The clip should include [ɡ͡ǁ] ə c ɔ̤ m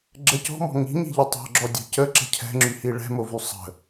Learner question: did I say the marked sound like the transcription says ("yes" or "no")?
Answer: yes